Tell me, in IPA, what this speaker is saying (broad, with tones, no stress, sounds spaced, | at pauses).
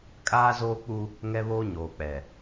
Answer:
kʼ aː˦ z oː˦ k͡p u˦ | ŋ ɛ˦ β oː˦ ɲ oː˨ k͡p ɛ˨